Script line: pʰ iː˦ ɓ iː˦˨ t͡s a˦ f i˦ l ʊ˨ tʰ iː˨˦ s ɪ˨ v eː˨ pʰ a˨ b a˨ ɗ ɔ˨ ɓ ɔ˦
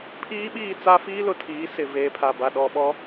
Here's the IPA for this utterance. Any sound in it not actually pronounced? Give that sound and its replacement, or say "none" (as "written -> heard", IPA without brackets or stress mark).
none